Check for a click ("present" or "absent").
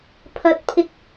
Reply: absent